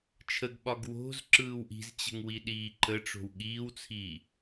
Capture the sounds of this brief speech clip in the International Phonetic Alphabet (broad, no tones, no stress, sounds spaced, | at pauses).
t͡ʃʰ ə ɡ ɓ ɒ ɡ w o̤ z ǁ ɯː w ʔ i̤ z t͡ɕ ə̤ ŋ w i ɗ iː ǃ ə ʈ͡ʂ o̤ w ɠ iː w t͡sʰ iː